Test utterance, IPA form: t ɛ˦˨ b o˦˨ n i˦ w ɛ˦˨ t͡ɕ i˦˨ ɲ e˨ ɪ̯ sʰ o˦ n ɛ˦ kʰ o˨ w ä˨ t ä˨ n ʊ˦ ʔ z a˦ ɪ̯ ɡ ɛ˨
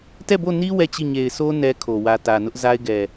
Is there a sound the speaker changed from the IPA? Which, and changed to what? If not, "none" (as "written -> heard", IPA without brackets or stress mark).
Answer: none